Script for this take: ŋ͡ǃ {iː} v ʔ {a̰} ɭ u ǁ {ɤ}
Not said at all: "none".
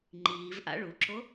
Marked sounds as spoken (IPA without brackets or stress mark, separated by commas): iː, a̰, o